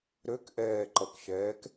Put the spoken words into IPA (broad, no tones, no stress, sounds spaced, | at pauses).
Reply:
ɾ ø k ʔ ɛː ǃ ʌ k ʃ ɛː k